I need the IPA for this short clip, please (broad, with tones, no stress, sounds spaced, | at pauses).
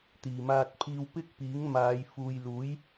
t̪ iː˨˩ m aː˧ t̚ pʰ iː˧ w p ɪ˥ k̚ p iː˨˥ ŋ m aː˨˧ j f uː˨ j l uː˨˥ j